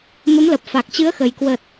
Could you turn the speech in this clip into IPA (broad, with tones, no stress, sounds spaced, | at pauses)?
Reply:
m ə˨˦ m l ə˨˩ p̚ f a˨˩ k̚ t͡ɕ ɨ˨˦ ə̯ x ə˨˩ j k w ə˨˩ t̚